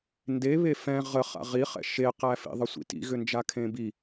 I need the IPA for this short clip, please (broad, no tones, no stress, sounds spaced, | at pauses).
n d e β e f ɛ̃ ʁ ə χ a̰ ʁ i χ ɛ̰ ʃ e q æ f ḭ ðˤ ə sʷ ḭ t ḭ ɣ ʏ n d͡ʒ a kʰ ẽ b i